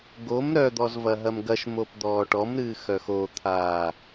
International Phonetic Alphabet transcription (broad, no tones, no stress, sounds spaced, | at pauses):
ɡ o m ɾ œ d̪ ɔ z v ɐ ɦ ɐ m ɡ ɐ ʃ m o p d̪ ɔː ʈ ɔ m ɾ ɨː x œ x o t̪ʰ aː